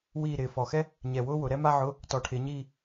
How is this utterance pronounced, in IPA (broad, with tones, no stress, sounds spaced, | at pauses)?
w iː˦˨ ɾ ɪː˨˩ f ɔ˨˩ x ɛ˥ | ɲ ɛ˨˩ w ʊː˥ w ʊ˩˧ ɾ ɛ˥ m a˥ ʕ ʊ˧˥˧ | t ɔ˨˩ ʈʰ ɪː˩˧ ɲ iː˦˨